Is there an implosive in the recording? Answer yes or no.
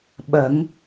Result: yes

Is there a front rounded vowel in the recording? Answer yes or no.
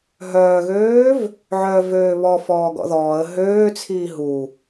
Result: yes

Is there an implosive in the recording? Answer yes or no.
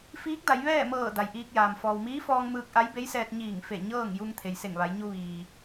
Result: no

